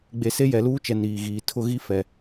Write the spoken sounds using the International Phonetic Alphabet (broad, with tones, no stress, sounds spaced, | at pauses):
ɡ͡b e˨ s e˦ j ɛ˨ l uː˦ t͡ʃ ɛ˨ n iː˨ ɣ iː˨ tʰ ʊ˦˨ ɣ i˦ f ɛ˨